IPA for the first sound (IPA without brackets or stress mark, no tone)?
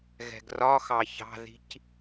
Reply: ɣ